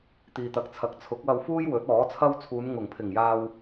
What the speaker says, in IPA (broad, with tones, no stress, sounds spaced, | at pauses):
t̪ iː˨ t̪ ɐ˨˥ k̚ t͡sʰ ɐ˨˥ k̚ t͡sʰ ʊ˨˥ k̚ w ɐ˧ w f uː˥ j w ɵ˨˥ t̚ ɔː˨˥ t͡sʰ ɐ˥ w t͡sʰ uː˨˧ n ŋ ʊ˨˩ ŋ pʰ ɪ˨˩ ŋ j aː˧ w